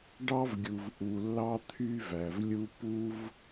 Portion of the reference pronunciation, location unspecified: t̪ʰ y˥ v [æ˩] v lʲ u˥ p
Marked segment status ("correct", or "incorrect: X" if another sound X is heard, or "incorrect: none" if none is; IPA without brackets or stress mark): correct